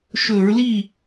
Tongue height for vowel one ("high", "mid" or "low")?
mid